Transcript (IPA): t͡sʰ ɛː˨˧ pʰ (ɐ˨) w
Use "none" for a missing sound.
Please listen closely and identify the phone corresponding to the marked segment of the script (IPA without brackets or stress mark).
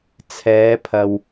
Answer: ɐ˨